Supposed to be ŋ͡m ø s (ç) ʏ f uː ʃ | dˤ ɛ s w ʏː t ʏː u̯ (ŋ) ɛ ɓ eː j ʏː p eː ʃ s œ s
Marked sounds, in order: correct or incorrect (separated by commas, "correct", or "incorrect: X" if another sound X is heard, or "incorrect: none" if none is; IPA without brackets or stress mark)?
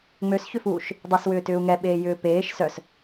correct, correct